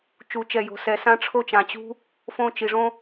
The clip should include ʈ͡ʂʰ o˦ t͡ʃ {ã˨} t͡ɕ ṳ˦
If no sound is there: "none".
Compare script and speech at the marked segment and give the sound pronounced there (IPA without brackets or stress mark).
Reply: ã˨